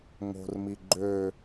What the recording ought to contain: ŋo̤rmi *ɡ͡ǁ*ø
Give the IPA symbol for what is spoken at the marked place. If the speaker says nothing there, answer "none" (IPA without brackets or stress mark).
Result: ɡ͡ǃ